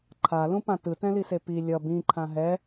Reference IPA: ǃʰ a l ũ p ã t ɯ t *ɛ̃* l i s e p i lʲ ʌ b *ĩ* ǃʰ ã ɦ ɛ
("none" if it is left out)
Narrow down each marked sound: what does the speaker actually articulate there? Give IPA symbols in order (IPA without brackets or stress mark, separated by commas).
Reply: ɛ̃, ĩ